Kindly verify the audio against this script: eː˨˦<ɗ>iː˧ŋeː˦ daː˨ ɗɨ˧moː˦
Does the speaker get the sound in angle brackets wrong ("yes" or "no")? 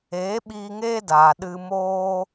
yes